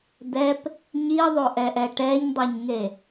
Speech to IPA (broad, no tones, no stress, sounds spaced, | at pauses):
d̪ ɛ p | ɲ i ðˤ o ʔ ɛ ʔ ɛ ʈ ɛ ɲ dˤ ɛ ɲ ŋ e